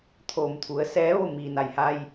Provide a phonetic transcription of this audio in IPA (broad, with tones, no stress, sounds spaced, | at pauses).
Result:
t̪ʰ oː˩ m t̪ʰ u˩˧ ə̯ s ɛː˧˥ ʋ o˥˨ m iː˩ n a˩ j h a˧ j